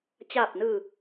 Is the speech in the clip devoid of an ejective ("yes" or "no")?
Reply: yes